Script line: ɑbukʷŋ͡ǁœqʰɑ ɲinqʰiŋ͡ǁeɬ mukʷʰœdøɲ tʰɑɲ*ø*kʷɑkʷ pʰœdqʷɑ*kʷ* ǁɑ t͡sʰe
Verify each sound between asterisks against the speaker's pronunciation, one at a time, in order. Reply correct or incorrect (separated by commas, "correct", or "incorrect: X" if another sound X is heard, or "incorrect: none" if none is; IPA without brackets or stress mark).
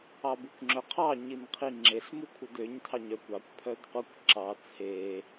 incorrect: œ, correct